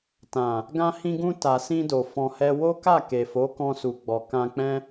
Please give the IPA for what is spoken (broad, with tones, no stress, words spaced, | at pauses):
tã˨ | ɡã˧hĩ˧ɡũ˧ ta˨sĩ˧do˨ fɔ̃˨hɛ˧ wo˦ka˦˨ ke˨fo˨˦ kɔ̃˧su˨ɡ͡bɔ˨ kã˧k͡pɛ̃˦